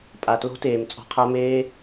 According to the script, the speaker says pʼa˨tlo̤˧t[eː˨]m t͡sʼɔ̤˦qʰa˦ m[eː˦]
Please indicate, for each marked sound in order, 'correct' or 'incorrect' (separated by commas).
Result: correct, correct